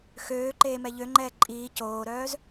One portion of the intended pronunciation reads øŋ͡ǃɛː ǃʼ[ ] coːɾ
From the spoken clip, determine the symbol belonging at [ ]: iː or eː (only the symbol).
iː